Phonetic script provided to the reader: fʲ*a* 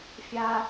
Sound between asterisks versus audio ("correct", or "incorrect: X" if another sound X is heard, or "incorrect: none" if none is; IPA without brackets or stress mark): correct